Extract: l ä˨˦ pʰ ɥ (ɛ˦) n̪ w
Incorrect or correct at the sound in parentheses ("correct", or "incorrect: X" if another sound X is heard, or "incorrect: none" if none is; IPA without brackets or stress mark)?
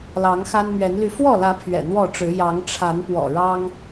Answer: incorrect: ɛ̰˨˩